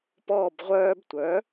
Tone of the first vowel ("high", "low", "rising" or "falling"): falling